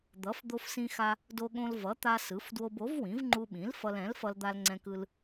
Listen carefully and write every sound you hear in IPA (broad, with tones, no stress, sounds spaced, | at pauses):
d̪ ʌ˩˥ f d̪ o˧ f s ĩ˧ x a˧ | d o˧ ɠ õ˧ l v ʌ˩˥ t̪ a˧ s ɯ˩˥ f d w o˧ b o˩˥ v w ĩ˩˥ v ŋ͡ǃ u˧ ɓ ĩ˩˥ l f ʌ˧ l ɛ̃˩˥ l f ʌ˧ l d̪ a˧ l ŋ͡ǀ ɛ̃˧ k ɯ˧ l